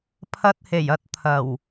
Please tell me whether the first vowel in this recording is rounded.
no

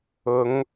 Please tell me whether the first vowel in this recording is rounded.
yes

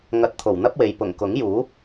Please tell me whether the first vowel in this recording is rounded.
no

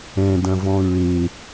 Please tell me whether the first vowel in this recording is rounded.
no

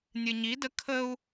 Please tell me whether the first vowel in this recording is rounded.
no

